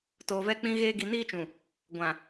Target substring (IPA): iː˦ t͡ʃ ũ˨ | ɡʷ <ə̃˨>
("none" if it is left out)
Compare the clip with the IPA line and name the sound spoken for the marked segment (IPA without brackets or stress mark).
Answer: ã˨